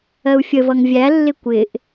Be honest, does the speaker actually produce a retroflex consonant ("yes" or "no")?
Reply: no